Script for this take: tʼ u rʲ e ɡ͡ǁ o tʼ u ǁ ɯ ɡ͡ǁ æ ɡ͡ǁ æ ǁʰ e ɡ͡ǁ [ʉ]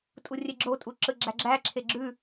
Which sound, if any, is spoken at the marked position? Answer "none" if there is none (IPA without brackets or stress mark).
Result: ʉ